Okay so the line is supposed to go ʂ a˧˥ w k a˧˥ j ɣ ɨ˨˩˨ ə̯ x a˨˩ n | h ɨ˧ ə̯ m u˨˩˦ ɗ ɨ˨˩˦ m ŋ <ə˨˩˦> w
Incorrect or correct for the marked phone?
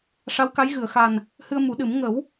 correct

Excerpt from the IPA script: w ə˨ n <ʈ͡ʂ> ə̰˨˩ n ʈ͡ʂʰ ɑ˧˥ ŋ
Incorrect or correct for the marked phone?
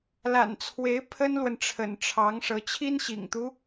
incorrect: ʈ͡ʂʰ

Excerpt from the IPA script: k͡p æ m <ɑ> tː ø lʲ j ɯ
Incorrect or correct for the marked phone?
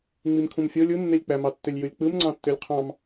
correct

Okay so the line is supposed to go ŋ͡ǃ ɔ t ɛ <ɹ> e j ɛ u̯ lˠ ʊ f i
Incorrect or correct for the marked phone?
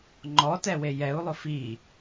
incorrect: w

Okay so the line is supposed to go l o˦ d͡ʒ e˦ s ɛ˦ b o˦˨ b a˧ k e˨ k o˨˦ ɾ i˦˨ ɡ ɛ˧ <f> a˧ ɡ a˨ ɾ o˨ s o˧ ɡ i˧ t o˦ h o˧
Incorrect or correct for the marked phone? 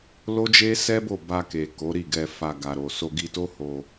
correct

